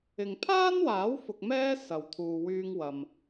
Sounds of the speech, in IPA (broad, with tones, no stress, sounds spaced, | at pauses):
ɪ˨ ŋ pʰ aː˥ n w aː˨˥ w f ʊ˧ k̚ m ɛː˥ s ɐ˨ w t̪ʰ uː˨ w yː˧ ŋ w ɐ˨ m